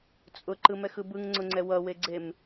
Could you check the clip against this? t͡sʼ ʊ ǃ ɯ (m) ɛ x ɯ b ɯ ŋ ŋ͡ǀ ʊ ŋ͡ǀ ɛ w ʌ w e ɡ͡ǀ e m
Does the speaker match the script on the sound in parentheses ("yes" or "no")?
yes